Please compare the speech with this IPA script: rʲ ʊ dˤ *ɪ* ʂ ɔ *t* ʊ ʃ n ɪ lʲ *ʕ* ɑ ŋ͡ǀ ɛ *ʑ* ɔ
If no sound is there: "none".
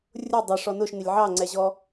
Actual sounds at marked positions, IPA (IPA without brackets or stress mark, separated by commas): ɪ, n, ʕ, ʑ